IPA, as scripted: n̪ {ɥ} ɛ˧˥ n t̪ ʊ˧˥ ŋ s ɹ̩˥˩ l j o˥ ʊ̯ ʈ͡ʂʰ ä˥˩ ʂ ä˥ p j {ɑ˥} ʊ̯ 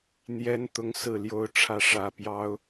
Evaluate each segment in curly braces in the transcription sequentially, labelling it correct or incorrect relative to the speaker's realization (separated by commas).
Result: incorrect, correct